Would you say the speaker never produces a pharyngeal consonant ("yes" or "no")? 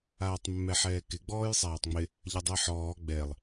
no